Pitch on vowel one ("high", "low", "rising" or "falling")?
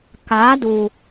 rising